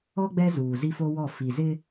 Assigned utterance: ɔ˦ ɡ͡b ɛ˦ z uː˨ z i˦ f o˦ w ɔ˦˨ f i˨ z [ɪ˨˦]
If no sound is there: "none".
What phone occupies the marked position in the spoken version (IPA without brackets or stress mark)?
ɪ˦